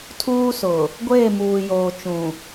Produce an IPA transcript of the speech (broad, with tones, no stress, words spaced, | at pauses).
tʰuː˦sʊ˨ | ɡʷeː˦˨muː˨joː˨ t͡ʃũ˨